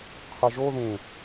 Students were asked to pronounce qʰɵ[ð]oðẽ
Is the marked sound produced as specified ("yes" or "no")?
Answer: no